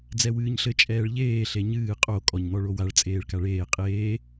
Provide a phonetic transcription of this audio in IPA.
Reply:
d͡z ɛ w ɨː ɲ ɬ ɘ t͡ʃʼ ɛː ɭ ʎ eː ɬ e ɲ ɨː qʼ o kʼ ɔ ɲ n̪ ɔ ɭ o w a ɭ t͡sʼ eː ɭ k a ɭ eː qʼ eː

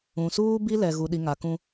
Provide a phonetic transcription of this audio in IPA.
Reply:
ũ˨ s uː˦ b i˦ l ɛ˨ ɣ u˨ ɗ i˨ ŋ a˨ k ũ˦

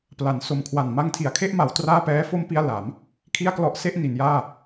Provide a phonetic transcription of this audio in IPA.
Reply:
p l a˩˦ n s o˨˩ m kʰ w a˨˩ n m a˧ ŋ tʰ i˩˦ a̯ kʰ e˥˩ ʔ m a˩˦ w t r aː˥˩ p ɛː˦˥ f o˥˩ m p i˥˩ a̯ l a˩˦ m | kʰ i˥˩ a̯ k l ɔ˦˥ ʔ s e˥˩ ʔ n i˩˦ n j aː˥˩

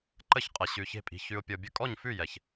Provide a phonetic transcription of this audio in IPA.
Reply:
ǃ ə˦ ç qʼ ə˨ ɕ ʉ˨ ç e̤˧ pʼ i̤˨ ç ʉ˨ ʊ̯ pʲ ɤ˨ bʲ ə˧ kʼ ɔ˦˨ ɲ f ʉ˦˨ j ɛ˨ ç

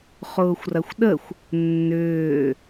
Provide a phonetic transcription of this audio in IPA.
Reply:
χ ʊː xʷ r ɐ xʷ ɗ ə xʷ | nː ʏː

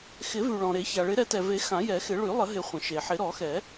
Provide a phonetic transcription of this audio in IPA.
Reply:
x ɪ˨˩˦ v y˩ ɭ ɔ̃˩ ɾ e˨˩˦ ç a˩ ɭ ɪ˨˩˦ ɾ ɛ˨˩˦ t ɛ˩ v e˨˩˦ x ã˨˩˦ j ɛ˨˩˦ x ɪ˨˩˦ ɭ y˨˩˦ lˠ ə˨˩˦ ɦ ɪ˨˩˦ χʷ ə̃˩ ʃ e˩ ħ ɪ˨˩˦ ɾ ɔ˨˩˦ x ɛ˨˩˦

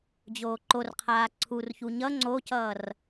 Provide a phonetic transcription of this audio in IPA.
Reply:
d͡ʑ oː ǃ o r qʰ aː ǀʰ u r ç u ɲ ʌ ŋ͡ǀ o c ʌː r

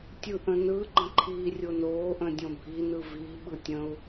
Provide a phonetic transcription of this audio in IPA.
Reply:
tʲ ɯ ʔ ə̃ n ɯ ɡ͡ǃ ə̃ ǃʰ iː rʲ o n oː ʔ ə̃ dʲ õ bʱ i n ɯ v i ɓ ɯ tʲ ə̃ u̯

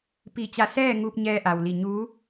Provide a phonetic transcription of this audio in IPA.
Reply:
p i˧˩ t͡ɕ a˧˩ s ɛː˥˨ ŋ uː˧ p̚ ɲ ɛː˧ ʔ a˩ w l i˧˩ ɲ uː˧˥

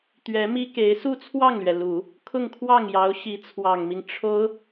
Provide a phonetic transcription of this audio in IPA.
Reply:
t̪ ɥ ɛ˧˥ m i˥ k e˧˥ ɪ̯ s u˥˧ t͡sʰ w ɑ˥˩ ŋ l ɥ ɛ˩ l u˨˩˦ | kʰ ʊ˥˧ ŋ kʰ w ɑ˥˩ ŋ j ɑ˧˥ ʊ̯ ɕ i˧˥ t͡sʰ w ɑ˨˩ ŋ m i˦ ŋ ʈ͡ʂʰ o˥ ʊ̯

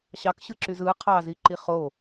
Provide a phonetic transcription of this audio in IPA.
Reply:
ɕ ɑ k ɕ ɯ ǁ y z ɯ qʰ ɑ z i ǃ i χ o

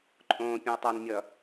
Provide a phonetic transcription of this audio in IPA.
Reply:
ǃʼ õː pʲ ũ ɐ̯ tˤ ʌ n mʲ ʌ

